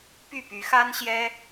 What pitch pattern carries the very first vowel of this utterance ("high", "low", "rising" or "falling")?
falling